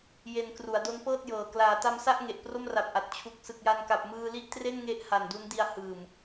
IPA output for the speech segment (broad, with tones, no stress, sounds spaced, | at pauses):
j e˧ n k r u˩˦ a̯ d o˦˥ n p ɤː˥˩ t̚ j ɤː˨˩ k l aː˩˦ t a˧ m s a˥˩ ʔ ŋ e˨˩ ʔ p r o˥˩ m r a˨˩ p̚ ʔ a˨˩ t̚ t͡ɕʰ u˨˩ k̚ s ɯ˨˩ k̚ j a˧ n k a˨˩ p̚ m ɯː˧ l i˥˩ ʔ t r e˥˩ n ŋ e˦˥ ʔ h a˨˩ n d u˦˥ n d i˧ a̯ h ɯː˨˩ m